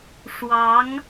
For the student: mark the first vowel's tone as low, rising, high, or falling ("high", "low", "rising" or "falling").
rising